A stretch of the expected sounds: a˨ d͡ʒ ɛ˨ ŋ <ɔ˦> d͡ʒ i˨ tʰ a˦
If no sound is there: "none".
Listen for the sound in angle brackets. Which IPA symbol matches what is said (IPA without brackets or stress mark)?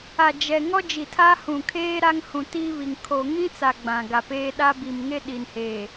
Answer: ɔ˦